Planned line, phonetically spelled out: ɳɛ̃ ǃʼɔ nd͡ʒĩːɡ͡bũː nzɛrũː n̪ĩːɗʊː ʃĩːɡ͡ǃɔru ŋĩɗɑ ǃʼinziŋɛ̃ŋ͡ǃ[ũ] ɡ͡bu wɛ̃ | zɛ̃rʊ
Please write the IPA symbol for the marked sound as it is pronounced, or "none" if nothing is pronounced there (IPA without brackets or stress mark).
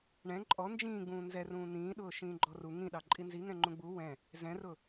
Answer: ũ